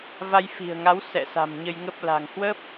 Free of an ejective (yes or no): yes